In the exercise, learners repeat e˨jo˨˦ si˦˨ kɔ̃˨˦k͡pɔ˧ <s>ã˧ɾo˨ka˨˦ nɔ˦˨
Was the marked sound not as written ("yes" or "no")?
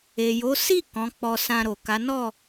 no